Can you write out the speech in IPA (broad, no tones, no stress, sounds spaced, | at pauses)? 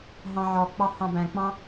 ɦ ɑ̃ ʕ ɔ k͡p ɑ h ɑ̃ b æ̃ k͡p ɑ̃